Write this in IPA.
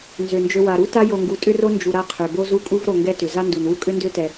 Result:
n z ø˩ n d͡ʒ ø˨ w a˩ ɾ u˦ t a˦ j o˨ ŋ ɡ u˨ tʼ ʏ˦ r o˦ n d͡ʒ u˨ ɾ a˦ qʰ ø˩ b o˦ z u˦ kʼ u˦ v ɾ o˨ ŋ ɡ ɛ˥ t ʏ˩ z a˥ n d u˩ n w u˥ kʼ ʏ˥ n d ø˦ t ɛ˩

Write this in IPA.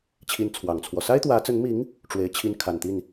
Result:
t͡ɕʰ i˧˥ n t͡sʰ w ɑ˨˩ ŋ t͡sʰ w ɔ˦ s a˥ ɪ̯ t̪ w ä˧˥ t͡s ə˧˥ n m i˧˥ ŋ | ʈ͡ʂ w e˧˥ ɪ̯ t͡ɕʰ i˥ n kʰ a˨˩ n t̪ i˥˩ n

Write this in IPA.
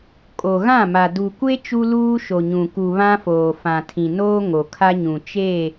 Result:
kʼ o˨ ɣ ã˦˨ m a˨ d u˨ kʷ e˦ t͡ʃ u˦ l uː˦ ʃ o˨ ɲ ũ˨ k u˨ β ã˦ f oː˨ f ã˨ tʰ ĩ˨ n oː˦ ŋ o˨ kʰ a˦ ɲ ũ˨ t͡ʃ e˦˨

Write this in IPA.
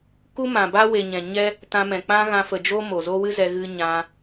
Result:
k u˦ m ã˨ b a˦ w e˨ ɲ ɛ̃˨ ɲ ɛ˦ | t ã˧ m ɛ̃˨ k͡p ã˦ ɣ ã˧ f ə˨ d͡ʒ o˦ m o˨ z o˦ w ɨ˦ z ɛ˧ ɣ ɨ˧ ɲ ã˧

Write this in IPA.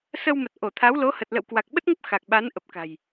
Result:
s ə˧ w m ə˨˩ t̚ ʔ o˧˩ t̪ʰ a˨˦ w l o˨˦ h ə˨˩ t̚ l ə̰˧˨ w k w a˨˩ k̚ ɓ ə˦˥ t̚ ŋ ə˦˥ p̚ x a˨˩ k̚ ɓ a˨˦ n ʔ ə˨˩ p̚ k a̤˨˩ j

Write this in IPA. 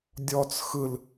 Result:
dʲ ɔ t͡s x ɯ l

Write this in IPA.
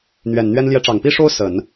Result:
n̪ ɥ ɛ˨˩ n n̪ ɥ ɛ˥ n l j ɛ˧˥ ʈ͡ʂ ɑ˨˩ ŋ p i˥ ʂ o˥ ʊ̯ s ə˨˩˦ n

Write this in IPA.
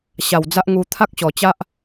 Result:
ɕ a˨˩ w d͡z a˦ ʔ ŋ u˧ t̪ʰ a˦ k̚ ɕ ɔ˨˩ t͡ɕ a˦ ʔ

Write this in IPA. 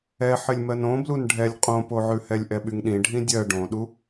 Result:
ɛ ħ ɘ lʲ m ɜ n õ b l u n ɖʱ ɛ lʲ qʼ õ p o ʕ ʉ h ɛ lʲ ʔ ɛ ɓ y ŋ ɗ ĩ ɖʱ ĩ dʲ ɜ ɖ õ ɗ u

